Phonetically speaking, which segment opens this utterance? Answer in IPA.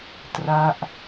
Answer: t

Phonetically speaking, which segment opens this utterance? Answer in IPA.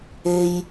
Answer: e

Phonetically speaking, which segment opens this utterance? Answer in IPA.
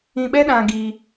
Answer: ĩ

